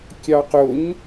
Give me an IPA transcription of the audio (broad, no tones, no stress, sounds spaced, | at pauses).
kʲ ɑ q ʊ ɲ